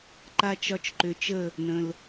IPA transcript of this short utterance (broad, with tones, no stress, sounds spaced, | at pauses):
ǃ a˧ t͡ʃ ɒ˧ t͡ʃ ǃ ʏ˨ t͡ʃ ə˦˨ | n ə̃˨ l